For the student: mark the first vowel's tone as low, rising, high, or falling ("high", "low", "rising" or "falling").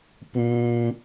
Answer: high